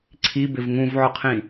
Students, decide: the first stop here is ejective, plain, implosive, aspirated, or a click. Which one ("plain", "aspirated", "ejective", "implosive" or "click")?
click